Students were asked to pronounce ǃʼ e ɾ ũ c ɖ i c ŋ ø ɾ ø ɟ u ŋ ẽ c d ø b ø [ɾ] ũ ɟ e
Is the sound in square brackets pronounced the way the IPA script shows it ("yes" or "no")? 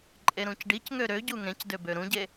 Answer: yes